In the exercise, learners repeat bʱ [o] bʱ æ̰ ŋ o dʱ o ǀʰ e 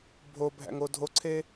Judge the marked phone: correct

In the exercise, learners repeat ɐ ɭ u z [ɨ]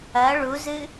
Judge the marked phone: correct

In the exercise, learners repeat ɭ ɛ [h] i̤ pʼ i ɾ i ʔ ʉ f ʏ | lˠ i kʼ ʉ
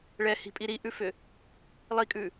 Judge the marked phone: correct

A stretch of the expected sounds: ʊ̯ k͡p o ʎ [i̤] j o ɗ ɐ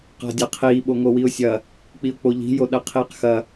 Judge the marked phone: correct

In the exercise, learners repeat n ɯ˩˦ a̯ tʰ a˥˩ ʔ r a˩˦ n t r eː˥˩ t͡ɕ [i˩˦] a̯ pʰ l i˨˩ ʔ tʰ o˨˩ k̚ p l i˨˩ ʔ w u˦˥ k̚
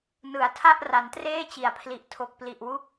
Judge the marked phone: correct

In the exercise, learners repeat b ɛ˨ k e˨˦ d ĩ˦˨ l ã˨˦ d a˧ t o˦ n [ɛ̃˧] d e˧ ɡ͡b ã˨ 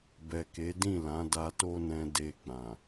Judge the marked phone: correct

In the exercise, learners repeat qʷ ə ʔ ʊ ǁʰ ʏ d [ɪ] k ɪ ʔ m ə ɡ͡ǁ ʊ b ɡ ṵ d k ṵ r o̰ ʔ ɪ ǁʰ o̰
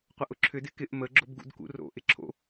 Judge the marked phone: correct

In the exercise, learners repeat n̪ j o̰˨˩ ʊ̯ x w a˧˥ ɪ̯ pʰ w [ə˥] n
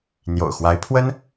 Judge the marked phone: correct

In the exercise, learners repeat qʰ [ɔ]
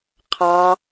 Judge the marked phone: incorrect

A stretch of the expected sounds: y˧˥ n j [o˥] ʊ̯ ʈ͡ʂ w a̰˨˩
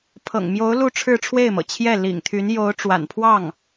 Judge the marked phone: incorrect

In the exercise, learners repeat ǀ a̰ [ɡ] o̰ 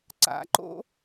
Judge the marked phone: incorrect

